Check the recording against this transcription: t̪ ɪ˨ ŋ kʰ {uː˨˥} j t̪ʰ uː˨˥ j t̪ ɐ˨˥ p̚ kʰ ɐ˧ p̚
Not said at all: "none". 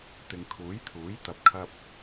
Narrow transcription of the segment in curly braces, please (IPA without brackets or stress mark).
uː˨˥